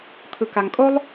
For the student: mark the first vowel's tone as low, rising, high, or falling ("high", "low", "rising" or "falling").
low